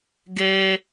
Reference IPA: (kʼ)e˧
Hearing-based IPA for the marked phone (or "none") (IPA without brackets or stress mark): ɡ